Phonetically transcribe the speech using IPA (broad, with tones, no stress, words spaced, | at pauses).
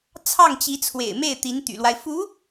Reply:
t͡sʰɑ˥˩ŋt͡ɕi˧˥ t͡sʰwḛ˨˩ɪ̯me˥˩ɪ̯t̪i˧˥n t̪y̰˨˩lwa˦ɪ̯ fu˧˥